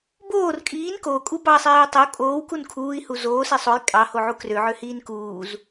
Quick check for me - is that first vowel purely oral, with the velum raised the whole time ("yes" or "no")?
yes